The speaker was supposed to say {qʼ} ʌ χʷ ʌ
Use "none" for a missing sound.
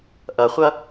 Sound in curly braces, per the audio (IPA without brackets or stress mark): ʔ